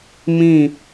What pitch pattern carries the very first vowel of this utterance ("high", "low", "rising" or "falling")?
falling